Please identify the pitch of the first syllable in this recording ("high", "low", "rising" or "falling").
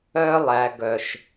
high